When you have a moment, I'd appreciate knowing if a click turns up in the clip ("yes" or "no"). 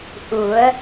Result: no